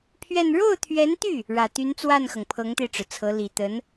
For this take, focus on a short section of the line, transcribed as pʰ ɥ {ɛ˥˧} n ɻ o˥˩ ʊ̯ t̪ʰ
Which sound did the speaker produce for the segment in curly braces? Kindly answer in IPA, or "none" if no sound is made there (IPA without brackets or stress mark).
ɛ˥˧